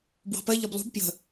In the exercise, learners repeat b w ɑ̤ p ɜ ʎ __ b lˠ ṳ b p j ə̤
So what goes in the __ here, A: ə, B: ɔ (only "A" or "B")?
B